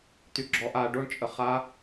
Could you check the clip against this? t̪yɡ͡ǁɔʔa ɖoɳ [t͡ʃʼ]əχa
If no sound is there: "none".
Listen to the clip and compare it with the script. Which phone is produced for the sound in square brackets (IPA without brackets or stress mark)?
t͡ʃʼ